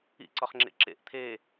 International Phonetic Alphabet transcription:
ḭǀɒχ ŋ͡ǁḛǁḛʔ t̪ʰe

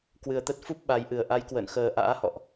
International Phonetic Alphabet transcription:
kwɨ˨˩ə̯t̪ə˦˥t̚fu˦˥p̚ ɓa˨˦jʔɨ˨˩ə̯ ʔa˨˦j kwə̰ː˧˨nxəː˨˩ʔa̰ː˧˥ hɔ̰˧˨ʔ

